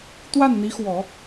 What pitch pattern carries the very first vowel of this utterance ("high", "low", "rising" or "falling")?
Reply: falling